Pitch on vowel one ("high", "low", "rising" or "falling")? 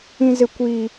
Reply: low